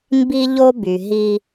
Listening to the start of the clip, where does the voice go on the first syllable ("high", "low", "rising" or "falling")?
high